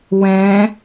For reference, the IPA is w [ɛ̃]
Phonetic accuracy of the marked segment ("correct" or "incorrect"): correct